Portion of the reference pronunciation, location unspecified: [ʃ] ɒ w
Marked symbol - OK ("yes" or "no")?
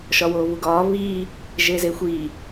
yes